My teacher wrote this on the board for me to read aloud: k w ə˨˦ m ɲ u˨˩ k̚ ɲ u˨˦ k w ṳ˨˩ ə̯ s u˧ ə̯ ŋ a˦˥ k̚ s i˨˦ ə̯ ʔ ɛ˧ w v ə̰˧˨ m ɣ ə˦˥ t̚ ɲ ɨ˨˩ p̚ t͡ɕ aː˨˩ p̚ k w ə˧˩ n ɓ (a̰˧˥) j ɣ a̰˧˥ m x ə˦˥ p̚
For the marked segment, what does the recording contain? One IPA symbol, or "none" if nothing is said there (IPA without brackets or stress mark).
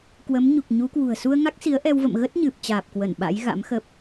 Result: a̰˧˥